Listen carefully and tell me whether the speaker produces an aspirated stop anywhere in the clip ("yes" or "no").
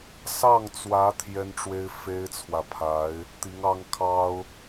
yes